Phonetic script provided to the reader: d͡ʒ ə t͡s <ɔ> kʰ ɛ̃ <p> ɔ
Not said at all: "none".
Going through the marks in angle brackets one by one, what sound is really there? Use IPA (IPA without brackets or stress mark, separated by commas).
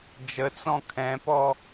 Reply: ɔ̃, p